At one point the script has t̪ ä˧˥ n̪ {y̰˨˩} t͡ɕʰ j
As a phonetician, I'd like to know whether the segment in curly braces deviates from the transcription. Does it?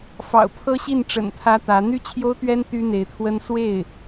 yes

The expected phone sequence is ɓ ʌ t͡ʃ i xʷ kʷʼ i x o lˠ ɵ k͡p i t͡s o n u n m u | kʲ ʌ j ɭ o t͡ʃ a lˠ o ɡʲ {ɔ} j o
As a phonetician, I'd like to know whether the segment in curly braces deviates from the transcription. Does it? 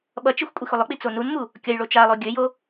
yes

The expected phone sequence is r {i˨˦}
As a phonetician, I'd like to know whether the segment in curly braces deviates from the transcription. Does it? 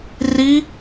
no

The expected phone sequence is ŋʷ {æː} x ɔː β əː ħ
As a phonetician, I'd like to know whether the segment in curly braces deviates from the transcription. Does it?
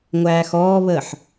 no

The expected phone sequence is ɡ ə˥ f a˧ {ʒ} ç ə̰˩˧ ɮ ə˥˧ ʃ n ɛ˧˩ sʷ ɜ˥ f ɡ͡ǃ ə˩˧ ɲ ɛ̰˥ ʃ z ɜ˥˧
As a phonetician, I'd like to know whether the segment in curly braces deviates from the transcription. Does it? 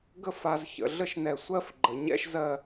yes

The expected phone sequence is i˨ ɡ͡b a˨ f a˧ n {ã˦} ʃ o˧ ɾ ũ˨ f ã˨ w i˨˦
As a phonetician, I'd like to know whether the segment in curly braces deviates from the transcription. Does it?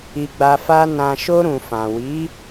yes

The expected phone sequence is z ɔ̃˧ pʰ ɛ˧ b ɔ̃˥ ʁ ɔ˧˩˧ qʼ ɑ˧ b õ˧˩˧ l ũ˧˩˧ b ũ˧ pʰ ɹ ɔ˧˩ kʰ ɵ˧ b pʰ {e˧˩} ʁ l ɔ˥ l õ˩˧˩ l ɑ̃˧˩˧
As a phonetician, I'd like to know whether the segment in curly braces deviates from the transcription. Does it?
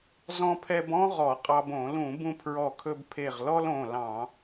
no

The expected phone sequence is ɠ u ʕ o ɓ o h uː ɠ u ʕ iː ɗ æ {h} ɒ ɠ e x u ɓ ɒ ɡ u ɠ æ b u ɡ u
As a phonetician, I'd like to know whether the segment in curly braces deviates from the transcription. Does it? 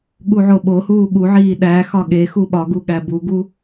yes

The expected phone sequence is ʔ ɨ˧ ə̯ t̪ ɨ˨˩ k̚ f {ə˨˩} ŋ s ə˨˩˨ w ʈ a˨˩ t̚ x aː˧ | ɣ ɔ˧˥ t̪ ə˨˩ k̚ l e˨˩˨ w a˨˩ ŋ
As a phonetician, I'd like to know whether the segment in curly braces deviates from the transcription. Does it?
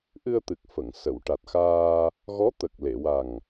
yes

